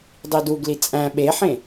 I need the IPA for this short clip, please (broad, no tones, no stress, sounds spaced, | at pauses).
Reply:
dˤ i d u ɡ l i t͡sʼ æ̃ ɓ e ħ ẽ